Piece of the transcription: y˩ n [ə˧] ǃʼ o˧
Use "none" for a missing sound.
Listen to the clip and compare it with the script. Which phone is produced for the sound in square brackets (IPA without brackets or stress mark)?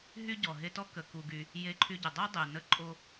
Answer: ə˧